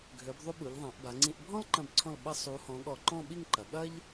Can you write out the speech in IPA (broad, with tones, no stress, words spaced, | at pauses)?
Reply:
ɡʱø˩˧bðˤu˧ ɓu˩˧ʎðˤã˩˧ʔba˩˧ŋ͡ǀĩ˧ʔ bʱɔ̃˥lǃɐ̃˧˩bǀʰɔ̃˧˩l ɓɐ˧sˤu˩˧hɔ̃˩˧ ɠɔ˧˩ǃɔ̃˥˧ɓi˥˧ŋǃɐ˩˧ ɠɐ˥ʎ